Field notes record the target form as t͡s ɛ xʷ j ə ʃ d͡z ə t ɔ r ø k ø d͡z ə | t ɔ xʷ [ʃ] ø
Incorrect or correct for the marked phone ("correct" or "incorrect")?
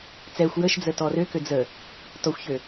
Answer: incorrect